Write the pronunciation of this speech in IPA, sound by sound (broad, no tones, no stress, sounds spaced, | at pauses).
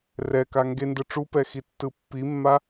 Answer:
r ɛ k a ŋ ɡ e n d ɯ ʈ͡ʂ u p ɛ x i tː ɯ pː i mː a